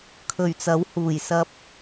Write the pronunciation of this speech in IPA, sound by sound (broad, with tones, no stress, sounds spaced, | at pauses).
kʰ ɵ˨˩ ɥ t͡s ɐ˨˥ w h uː˨˩ j s ɐ˧ p̚